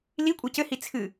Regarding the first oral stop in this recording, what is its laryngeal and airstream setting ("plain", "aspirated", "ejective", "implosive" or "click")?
ejective